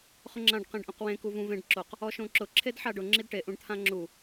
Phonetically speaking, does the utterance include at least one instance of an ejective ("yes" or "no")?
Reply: no